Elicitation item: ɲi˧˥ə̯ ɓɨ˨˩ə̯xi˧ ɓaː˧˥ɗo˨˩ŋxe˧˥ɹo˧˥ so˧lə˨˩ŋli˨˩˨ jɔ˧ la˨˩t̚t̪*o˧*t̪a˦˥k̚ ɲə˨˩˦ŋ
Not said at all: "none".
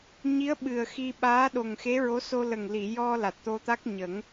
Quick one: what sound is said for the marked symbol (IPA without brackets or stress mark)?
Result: o˧